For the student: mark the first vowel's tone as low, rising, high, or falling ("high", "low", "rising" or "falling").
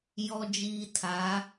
low